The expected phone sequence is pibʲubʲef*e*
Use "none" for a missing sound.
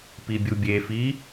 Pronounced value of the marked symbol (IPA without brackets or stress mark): i